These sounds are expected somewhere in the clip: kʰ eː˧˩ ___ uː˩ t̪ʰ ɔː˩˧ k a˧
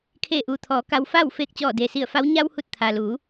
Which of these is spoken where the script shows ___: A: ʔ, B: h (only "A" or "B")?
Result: A